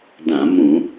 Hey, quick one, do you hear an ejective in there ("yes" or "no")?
no